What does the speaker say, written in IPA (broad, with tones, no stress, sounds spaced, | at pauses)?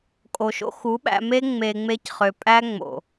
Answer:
kʼ o˨ ʃ o̰˦ x u˨˦ ɓ æ̰˧ m e˦ ŋ͡m e˧ ŋ͡m e˧ c χ ø˨ pʼ æ˦ ŋ͡m o̰˨